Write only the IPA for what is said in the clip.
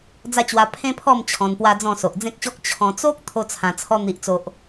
d͡z a˦ t͡ɕ w a˧ pʰ ẽ˦ pʰ ɔ˥˧ m t͡ɕʰ ɔ̃˧ n p w a˦ d͡z ɔ̃˥˧ s o˨ ʔ d͡z ẽ˦ k̚ ɕ ɔ˦ k̚ t͡ɕʰ ɔ̃˧ t͡s o˦ k̚ t̪ʰ o˦ t͡sʰ ã˧ t͡sʰ ɔ˦ n̪ i˨ ʔ t͡s o˨ ʔ

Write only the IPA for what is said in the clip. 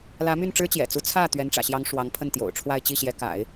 l ä˧˥ m y˥˩ n ʈ͡ʂ ɻ̩˥ t͡ɕ j ɛ̰˨˩ t͡s u˧˥ t͡sʰ ä˥˩ t̪ ɥ ɛ˧˥ n ʈ͡ʂ ä̰˨˩ ɕ j ɑ˧˥ ŋ ʂ w ɑ˧˥ ŋ pʰ ə˥˩ n t̪ j o̰˨˩ ʊ̯ ʈ͡ʂʰ w a˥˧ ɪ̯ t͡ɕ i˥˩ ɕ j ɛ˧˥ k a̰˨˩˦ ɪ̯

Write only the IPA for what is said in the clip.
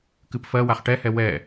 k ɨ p f ɜ w a χ ʈ ɛ h ɛ w ɛ

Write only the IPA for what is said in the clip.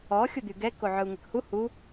ɔ xʲ u d̪ y ɡ ɛ k o ʕ œ u̯ ŋ ə k h u h u

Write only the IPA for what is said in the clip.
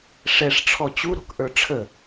ʂ ɛ ʂ ʈ͡ʂʰ ɔ t͡ɕ u ɾ o̤ k ʔ ə˞ ʈ͡ʂʰ ə

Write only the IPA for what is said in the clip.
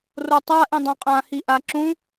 r o tˤ a ʔ ĩ dˤ ã qʼ ã h i ʔ a ǁ ũ

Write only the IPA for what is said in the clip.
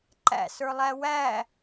ǃ æ̰ s ə˞ lˠ æ w æ

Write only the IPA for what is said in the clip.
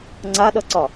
ŋ͡ǀ a ɗ ʌ ǀ ɒ

